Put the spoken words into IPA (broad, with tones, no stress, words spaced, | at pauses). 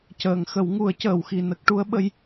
cəː˨˩˨ŋxə˨˩˦wŋu˨˩˦ə̯ cəː˨˩˨wxi˨˩nə˦˥k̚ʈu˧˥ə̯ ɓə˧˥j